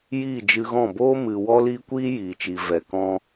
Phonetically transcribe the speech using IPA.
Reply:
j iː˦˨ d͡ʒ ɨ˧ ɣ ɔ̃˦˨ b oː˦ m ɨ˧ w ɔ˦ l iː˦ kʷ iː˦ j iː˨ t͡ʃ i˨ v ɛ˨ k ɔ̃˧

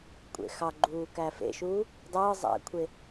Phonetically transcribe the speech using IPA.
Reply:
kʷʼ ḛ x ɑ ɡ͡ǃ uː k æ f ḛ ʃ uː | dˤ ɯː zˤ æ̰ kʷʰ e

